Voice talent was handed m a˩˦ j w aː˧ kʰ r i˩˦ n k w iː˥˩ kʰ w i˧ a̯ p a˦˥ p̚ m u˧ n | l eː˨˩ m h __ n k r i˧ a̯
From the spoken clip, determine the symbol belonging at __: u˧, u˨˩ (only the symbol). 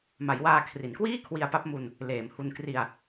u˧